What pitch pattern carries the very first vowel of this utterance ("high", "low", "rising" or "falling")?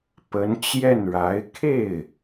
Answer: rising